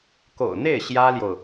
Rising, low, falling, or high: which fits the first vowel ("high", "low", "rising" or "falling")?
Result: low